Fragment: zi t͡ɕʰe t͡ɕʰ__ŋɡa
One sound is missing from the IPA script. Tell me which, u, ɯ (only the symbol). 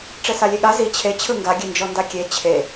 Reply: ɯ